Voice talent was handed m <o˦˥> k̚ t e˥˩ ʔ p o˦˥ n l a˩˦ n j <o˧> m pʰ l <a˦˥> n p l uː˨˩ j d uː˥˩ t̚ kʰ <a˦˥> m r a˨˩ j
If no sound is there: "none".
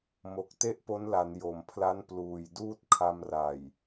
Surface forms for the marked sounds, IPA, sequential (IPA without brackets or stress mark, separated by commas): o˨˩, o˩˦, a˦˥, a˧